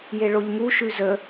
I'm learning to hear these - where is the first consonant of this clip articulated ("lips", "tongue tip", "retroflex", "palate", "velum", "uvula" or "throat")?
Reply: palate